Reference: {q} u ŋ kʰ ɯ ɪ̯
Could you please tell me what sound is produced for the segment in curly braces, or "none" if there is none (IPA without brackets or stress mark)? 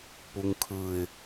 p